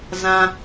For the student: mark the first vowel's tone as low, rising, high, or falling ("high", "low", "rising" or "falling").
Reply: high